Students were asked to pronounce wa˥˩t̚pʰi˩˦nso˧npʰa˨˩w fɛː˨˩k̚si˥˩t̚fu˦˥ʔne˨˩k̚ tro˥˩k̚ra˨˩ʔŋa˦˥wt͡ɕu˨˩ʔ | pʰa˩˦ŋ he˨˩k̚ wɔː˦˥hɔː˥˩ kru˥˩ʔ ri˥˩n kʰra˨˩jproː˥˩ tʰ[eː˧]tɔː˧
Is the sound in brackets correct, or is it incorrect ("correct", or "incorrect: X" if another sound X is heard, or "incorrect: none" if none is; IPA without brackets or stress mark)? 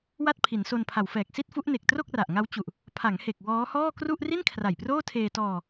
correct